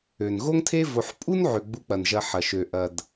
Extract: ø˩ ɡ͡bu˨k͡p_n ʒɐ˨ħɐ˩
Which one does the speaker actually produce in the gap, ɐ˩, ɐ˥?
ɐ˩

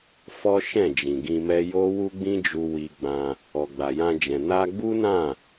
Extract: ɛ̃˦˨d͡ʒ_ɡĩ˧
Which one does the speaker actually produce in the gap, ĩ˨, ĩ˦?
ĩ˨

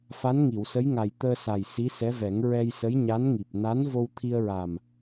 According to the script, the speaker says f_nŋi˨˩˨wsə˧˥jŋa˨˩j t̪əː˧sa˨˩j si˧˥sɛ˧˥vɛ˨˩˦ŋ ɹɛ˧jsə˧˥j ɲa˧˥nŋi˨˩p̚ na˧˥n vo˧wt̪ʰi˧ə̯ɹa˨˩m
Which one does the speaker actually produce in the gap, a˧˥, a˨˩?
a˧˥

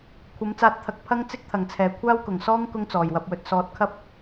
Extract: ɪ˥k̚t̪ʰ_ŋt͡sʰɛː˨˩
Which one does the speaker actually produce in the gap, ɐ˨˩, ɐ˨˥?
ɐ˨˩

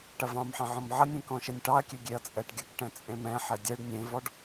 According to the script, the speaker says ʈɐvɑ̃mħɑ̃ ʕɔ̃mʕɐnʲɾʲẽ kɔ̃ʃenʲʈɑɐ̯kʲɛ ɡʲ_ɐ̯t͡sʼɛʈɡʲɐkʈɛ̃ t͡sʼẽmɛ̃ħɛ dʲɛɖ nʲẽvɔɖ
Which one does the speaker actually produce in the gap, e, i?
e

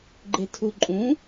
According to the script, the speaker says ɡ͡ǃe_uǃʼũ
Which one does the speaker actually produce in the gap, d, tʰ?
tʰ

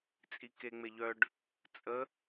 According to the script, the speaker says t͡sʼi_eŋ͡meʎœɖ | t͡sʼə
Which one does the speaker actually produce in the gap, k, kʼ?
k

